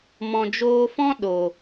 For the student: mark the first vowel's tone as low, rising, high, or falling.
low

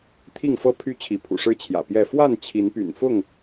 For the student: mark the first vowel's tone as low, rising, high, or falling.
falling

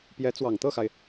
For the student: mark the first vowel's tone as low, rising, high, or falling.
rising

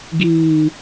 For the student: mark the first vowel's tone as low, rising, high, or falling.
low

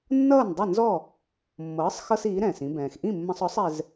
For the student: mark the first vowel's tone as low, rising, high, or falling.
falling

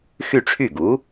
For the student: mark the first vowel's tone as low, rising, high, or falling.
falling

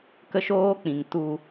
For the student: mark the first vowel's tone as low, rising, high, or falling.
high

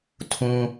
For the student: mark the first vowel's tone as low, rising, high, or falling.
high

